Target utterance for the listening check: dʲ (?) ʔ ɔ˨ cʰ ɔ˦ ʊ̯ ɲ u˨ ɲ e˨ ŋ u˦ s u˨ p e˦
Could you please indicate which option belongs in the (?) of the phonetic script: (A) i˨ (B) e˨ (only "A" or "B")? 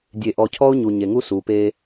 B